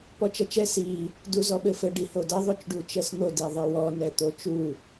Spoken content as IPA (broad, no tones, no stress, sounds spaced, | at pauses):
p ɔ t͡ʃ ɐ t͡ʃ ɛ s i | d u z ɔ ɓ ɘ f ɘ ɖ i h o d ɐ ðˤ o t͡ʃ ɖ u t͡ʃ ɛ s n̪ o d i ðˤ ɘ w ɔ n ɛ t̪ o t͡ʃ u